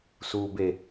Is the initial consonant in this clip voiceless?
yes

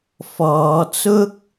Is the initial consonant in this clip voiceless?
yes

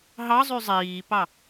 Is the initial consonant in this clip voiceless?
no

